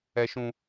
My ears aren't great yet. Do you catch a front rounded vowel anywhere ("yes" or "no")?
no